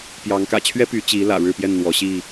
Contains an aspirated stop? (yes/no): yes